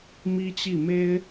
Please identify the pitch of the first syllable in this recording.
high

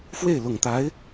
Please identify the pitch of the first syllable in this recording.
falling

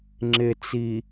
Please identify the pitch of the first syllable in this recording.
low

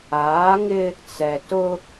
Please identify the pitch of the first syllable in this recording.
rising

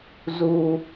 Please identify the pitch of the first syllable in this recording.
low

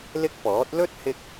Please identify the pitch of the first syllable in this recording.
high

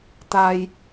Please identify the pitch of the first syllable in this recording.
low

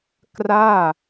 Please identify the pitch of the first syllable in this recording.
falling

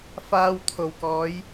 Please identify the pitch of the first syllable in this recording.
low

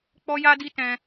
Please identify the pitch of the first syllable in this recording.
high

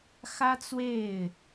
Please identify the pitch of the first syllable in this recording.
high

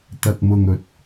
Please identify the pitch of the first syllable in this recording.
low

